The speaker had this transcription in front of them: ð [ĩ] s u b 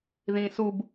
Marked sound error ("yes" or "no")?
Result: no